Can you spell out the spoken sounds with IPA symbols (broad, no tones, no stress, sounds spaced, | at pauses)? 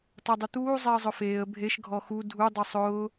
t ɒ dˤ ʊ t̪ uː zˤ ɛ ə̯ zˤ ʊ f eː ə̯ bʱ e ʃ ɡʱ ɔ x u dʱ u dˤ u sˤ ʊː